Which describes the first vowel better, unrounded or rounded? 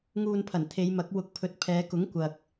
rounded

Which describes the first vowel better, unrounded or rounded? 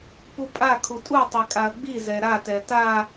rounded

